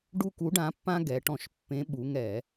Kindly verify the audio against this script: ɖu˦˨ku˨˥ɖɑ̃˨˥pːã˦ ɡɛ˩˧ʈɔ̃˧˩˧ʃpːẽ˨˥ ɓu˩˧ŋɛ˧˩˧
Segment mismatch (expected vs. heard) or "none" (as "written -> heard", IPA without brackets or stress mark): ɑ̃˨˥ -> ã˨˥